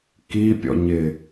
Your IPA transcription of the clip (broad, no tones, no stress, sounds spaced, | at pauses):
k i pʲ ɔ̰ ɲ ɪ